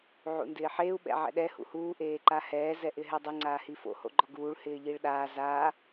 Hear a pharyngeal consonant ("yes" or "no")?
yes